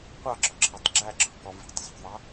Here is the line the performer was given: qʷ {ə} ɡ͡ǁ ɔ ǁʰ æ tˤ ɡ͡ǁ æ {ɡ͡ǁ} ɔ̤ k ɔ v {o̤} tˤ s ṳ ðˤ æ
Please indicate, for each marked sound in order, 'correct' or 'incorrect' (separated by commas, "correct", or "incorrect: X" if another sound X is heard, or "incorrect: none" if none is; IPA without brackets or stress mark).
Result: incorrect: ɑ, incorrect: ǁʰ, incorrect: ṳ